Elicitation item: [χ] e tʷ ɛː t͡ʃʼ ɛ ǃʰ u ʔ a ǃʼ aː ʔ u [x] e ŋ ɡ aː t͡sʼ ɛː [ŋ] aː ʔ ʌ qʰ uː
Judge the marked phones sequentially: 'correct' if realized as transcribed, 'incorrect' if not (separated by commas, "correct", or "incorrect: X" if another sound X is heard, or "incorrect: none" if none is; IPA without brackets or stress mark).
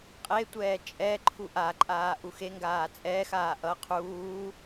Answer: incorrect: qʼ, correct, incorrect: x